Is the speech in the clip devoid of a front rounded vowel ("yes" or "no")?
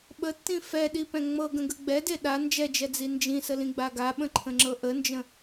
yes